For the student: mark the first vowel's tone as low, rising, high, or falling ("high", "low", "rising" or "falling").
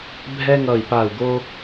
high